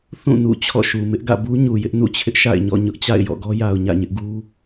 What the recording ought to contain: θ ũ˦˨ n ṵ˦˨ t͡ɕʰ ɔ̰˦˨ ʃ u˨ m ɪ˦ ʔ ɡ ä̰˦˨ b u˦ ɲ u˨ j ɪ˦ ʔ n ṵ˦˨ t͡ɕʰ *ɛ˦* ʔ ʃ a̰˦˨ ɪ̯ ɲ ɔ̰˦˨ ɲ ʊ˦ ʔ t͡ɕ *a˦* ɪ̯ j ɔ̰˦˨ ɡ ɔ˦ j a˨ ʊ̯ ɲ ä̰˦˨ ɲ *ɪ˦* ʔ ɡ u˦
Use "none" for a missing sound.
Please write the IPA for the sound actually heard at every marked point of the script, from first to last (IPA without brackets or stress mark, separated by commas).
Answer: ɪ˦, a̰˦˨, ɪ˦